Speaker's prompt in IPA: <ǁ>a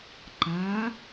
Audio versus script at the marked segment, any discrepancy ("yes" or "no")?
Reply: yes